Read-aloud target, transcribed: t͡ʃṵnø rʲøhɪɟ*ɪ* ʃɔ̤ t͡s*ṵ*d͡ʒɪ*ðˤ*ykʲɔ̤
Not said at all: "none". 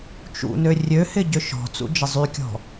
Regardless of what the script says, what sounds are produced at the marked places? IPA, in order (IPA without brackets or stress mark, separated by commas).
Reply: ʏ, ṵ, zˤ